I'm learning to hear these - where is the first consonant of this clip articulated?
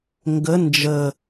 velum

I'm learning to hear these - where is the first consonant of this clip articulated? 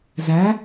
tongue tip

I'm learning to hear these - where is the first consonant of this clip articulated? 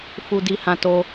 lips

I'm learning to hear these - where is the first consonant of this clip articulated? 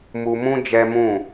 lips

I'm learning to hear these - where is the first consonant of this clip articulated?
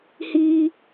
throat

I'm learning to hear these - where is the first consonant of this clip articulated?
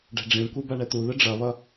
retroflex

